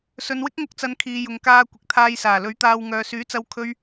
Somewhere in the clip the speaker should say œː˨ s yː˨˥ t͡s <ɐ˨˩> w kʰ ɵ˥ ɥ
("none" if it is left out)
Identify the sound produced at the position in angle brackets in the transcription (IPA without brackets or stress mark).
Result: ɐ˧